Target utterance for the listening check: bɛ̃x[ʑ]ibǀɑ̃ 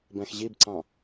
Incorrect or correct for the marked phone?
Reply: correct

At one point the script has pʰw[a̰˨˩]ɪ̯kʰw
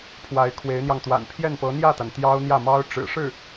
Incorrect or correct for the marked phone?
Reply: incorrect: a˧˥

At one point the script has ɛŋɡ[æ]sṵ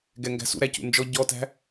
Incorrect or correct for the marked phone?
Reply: incorrect: æ̤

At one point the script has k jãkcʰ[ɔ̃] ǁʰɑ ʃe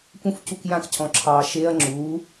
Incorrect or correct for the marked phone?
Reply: correct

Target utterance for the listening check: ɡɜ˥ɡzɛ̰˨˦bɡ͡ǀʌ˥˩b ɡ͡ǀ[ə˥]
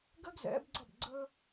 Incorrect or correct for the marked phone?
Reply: correct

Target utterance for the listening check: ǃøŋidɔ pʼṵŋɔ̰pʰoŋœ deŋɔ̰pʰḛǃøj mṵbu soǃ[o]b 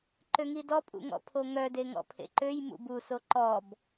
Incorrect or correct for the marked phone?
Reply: incorrect: ɔ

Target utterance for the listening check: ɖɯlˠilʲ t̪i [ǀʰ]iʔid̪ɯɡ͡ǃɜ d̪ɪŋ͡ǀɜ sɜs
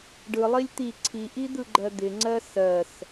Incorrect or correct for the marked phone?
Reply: correct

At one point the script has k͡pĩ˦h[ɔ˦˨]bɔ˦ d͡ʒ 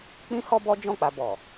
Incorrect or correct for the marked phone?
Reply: incorrect: ɔ˦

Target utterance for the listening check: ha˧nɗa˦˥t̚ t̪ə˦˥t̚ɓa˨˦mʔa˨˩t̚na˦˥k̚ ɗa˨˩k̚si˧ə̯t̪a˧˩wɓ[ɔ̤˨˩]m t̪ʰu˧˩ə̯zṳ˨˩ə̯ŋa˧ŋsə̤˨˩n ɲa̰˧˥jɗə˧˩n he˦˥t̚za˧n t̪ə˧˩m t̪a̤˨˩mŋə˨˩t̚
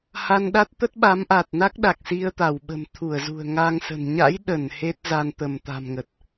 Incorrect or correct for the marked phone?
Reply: incorrect: ə̤˨˩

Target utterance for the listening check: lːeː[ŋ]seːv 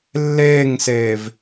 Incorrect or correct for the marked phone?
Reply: correct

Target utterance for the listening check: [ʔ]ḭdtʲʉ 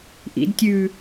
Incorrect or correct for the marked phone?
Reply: correct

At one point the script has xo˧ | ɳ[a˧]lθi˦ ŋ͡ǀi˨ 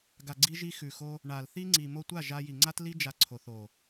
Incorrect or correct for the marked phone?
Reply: incorrect: a˨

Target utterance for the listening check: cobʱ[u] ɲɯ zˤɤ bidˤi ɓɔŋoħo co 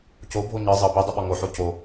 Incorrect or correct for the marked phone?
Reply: incorrect: o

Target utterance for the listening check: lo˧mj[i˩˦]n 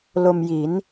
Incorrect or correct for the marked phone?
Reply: correct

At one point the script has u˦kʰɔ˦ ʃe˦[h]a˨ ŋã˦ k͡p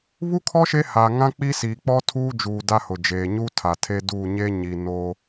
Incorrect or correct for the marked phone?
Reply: correct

